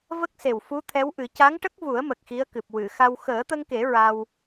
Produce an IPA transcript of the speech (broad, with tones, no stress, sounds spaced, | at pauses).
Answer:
v ə˦˥ k̚ s e˨˩ w f u˧˥ t̪ʰ ɛ˧˥ w ʔ ɨ˨˩˦ c a˧˥ ŋ ʈ ə˦˥ k̚ v u˨˩˦ ə̯ m ə˨˩ k̚ x i˧˥ ə̯ k ɨ˨˩ p̚ w ɨ˨˩˨ x a˧ w x əː˨˩˦ t̪ ə˧ ŋ k e˨˩˦ ɹ a˧ w